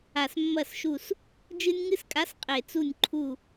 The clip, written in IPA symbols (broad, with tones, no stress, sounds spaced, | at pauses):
a˨˩ s mː ɐ˦˨ s ʃ u˦˨ s | d͡ʒ ɨ˦ nʲ ŋ ɨ˦ s kʼ a˨˥ s qʼ e˨˩ t͡s u˦˨ nʲ ǃʰ u˦˨